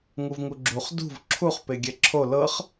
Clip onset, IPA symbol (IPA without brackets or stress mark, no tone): ŋ